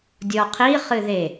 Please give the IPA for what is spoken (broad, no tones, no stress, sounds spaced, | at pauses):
dʲ ɔ qʰ i χ ɨ ð e